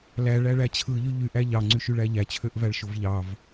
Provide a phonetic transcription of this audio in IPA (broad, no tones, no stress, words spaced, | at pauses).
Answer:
læɭæɭæ t͡ɕʰɯʎy ʎyʔæ ʎɑŋ͡ǀyʃyɭæ ʎæt͡ɕʰøʔvæɭʃov ʎɑv